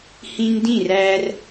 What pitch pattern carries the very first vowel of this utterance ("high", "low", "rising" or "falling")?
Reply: high